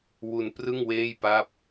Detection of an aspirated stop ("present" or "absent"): absent